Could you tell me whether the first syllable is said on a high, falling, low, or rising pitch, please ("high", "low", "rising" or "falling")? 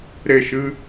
falling